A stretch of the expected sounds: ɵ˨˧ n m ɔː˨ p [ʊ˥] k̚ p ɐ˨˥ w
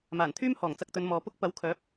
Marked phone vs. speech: correct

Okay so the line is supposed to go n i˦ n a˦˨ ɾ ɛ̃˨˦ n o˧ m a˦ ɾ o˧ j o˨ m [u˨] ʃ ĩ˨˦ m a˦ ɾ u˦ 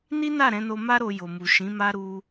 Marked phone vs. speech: correct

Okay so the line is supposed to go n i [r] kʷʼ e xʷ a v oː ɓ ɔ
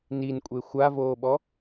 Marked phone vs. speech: incorrect: n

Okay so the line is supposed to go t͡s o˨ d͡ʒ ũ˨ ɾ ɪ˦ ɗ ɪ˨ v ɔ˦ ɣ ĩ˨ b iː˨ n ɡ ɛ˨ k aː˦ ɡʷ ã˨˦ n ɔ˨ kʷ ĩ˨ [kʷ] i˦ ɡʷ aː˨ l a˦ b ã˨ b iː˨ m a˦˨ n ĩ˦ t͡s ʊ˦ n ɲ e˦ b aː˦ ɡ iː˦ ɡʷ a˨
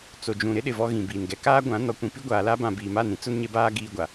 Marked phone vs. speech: incorrect: p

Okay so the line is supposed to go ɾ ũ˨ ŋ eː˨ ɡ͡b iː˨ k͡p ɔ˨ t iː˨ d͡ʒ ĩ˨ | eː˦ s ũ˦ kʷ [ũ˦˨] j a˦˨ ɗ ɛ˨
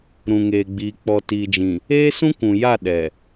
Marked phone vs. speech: incorrect: ũ˨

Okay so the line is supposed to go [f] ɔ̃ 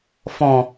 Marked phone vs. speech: correct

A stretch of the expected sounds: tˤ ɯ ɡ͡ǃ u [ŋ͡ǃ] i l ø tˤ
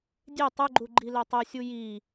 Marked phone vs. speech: incorrect: ɡ͡ǃ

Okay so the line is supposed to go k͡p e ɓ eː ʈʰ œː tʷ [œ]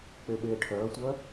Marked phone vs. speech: correct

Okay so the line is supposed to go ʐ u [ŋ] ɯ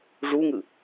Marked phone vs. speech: correct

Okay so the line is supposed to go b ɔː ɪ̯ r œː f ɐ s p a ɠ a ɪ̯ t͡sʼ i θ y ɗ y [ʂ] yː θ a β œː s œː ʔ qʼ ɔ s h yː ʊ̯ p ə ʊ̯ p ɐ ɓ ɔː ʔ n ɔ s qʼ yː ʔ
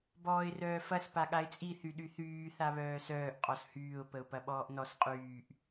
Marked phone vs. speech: incorrect: θ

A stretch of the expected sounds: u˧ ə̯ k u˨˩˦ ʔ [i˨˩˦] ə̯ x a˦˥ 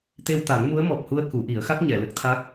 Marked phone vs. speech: correct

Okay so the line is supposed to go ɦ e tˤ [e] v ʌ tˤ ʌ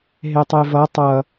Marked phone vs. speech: correct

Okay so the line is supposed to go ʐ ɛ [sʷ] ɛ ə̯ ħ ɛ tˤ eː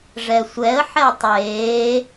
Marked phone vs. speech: correct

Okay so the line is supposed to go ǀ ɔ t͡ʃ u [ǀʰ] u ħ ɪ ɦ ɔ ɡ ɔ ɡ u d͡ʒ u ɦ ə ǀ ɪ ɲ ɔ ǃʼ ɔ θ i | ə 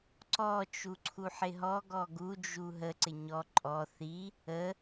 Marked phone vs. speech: correct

